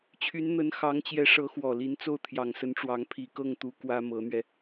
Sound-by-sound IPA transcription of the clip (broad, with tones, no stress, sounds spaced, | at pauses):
t͡ɕʰ y˧˥ n n̪ ə˧˥ n x ɑ˧˥ ŋ t͡ɕ j ɛ˧˥ ʂ ɤ˧˥ x w ɔ˨˩ l i˧˥ n t͡s o˥˩ ʊ̯ t̪ʰ j ɑ˨˩ ŋ s ə˧˥ n ʈ͡ʂ w ɑ˧˥ ŋ pʰ i˨˩ k ɤ˥˩ ŋ t̪ u˧˥ k w ä˥ m ɤ˧˥ n̪ ɥ ɛ˧